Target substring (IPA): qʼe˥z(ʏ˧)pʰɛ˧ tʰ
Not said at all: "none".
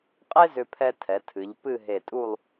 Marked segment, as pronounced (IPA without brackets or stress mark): ʏ˧